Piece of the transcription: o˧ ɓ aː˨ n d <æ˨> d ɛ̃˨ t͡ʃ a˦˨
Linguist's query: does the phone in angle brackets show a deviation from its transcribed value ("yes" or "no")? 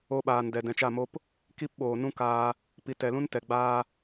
yes